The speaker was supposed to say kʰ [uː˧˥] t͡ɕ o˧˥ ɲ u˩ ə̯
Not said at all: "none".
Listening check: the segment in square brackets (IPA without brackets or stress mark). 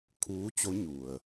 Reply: uː˧˥